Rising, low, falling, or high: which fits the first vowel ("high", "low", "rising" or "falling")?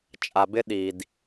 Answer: low